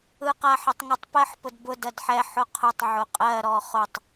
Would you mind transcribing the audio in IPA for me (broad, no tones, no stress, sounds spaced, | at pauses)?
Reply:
ɯ q a ħ ə tˤ ŋ ə tˤ p ɜ ħ p ʊ d b ʊ d ɜ d ħ ɛ ħ ʊ qʰ ʊ tˤ ʕ ʊ qʼ ɜ ɾ ɔ χ ʊ tˤ